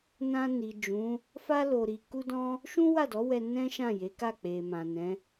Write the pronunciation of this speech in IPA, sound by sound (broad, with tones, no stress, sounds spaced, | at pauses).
n ã˧ n i˨ d͡ʒ ũ˨˦ | f a˦ l o˧ ɾ i˧ k u˦ d ɔ̃˦ | ʃ ũ˦ w a˦˨ d ɔ˨˦ w ɛ˧ n ɛ̃˦ ʃ ã˦˨ j e˨˦ k a˦˨ k͡p e˨ m ã˨ n ɛ̃˨˦